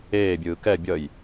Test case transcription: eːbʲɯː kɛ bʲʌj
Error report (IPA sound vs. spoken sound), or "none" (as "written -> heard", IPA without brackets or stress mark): none